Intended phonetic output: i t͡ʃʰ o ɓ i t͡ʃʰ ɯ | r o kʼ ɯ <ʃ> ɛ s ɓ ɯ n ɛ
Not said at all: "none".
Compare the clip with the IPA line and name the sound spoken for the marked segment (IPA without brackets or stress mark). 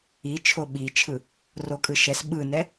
ʃ